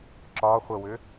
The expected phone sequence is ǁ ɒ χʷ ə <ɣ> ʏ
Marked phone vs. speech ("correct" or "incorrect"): incorrect